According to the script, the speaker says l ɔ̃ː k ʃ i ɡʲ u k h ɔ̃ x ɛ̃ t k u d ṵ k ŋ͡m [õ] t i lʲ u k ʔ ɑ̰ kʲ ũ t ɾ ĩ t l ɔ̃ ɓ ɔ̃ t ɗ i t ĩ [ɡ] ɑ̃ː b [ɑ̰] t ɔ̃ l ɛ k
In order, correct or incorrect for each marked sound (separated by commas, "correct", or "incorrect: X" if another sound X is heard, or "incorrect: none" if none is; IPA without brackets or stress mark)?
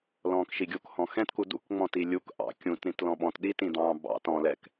incorrect: ɔ̃, incorrect: d̪, correct